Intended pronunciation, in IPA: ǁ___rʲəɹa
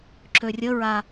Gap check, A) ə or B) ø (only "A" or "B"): B